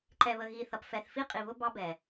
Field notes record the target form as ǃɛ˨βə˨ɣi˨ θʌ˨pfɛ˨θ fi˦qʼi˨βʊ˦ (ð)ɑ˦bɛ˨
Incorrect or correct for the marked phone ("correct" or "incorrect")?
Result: incorrect